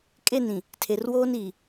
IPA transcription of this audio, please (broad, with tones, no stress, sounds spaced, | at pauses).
kʼ e˦˨ n ĩ˨ | tʰ e˨ r w oː˦ n iː˨